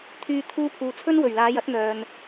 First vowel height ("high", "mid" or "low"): high